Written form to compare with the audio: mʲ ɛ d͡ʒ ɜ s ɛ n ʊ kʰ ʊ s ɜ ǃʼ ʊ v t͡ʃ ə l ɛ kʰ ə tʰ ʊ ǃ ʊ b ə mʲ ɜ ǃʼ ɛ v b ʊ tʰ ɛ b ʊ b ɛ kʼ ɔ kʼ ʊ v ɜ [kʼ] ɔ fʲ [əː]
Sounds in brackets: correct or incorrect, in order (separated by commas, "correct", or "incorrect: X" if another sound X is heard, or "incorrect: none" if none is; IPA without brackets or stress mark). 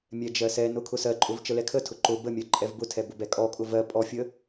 incorrect: pʼ, incorrect: ə